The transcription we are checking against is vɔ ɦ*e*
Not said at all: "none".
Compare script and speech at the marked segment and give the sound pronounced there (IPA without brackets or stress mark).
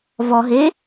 e